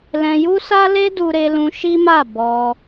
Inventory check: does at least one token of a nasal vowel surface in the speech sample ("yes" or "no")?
yes